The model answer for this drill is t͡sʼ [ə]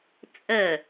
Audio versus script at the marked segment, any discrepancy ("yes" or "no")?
no